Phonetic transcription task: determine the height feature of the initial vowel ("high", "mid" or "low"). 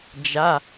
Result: low